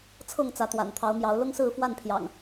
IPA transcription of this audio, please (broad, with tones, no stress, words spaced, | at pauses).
t͡sʰɤ˥˨ŋ t͡sä˨˦t̪wa̰˨˩nt̪ʰɑ˨˦ʊ̯mjɑ˨˦ʊ̯ lʊ˦ŋsɹ̩˥˨fwa˥˨npʰjɑ̰˨˩ŋ